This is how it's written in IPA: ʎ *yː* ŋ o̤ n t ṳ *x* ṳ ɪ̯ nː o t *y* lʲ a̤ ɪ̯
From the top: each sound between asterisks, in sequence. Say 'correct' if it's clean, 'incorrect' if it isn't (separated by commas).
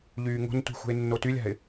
correct, correct, correct